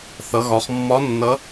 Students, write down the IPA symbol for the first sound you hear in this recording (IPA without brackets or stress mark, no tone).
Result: θ